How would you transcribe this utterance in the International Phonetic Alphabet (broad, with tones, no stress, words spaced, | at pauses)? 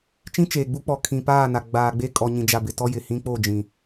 t͡ʃĩ˦t͡ʃeː˨ɡ͡bu˦k͡pɔ˨ kʰĩ˨paː˦˨na˨ ɡ͡baː˨ɡ͡be˦ kʼɔ˨ɲĩ˨d͡ʒa˨ bɪ˨tɔ˦jɪ˨ hĩ˦ k͡po˦˨ d͡ʒĩ˨